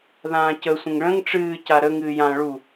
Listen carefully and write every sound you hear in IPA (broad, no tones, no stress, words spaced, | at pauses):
ðãːcə sʷə̃ŋɭə̃ŋ ʈ͡ʂɨː caɾə ŋɨːjã ɭu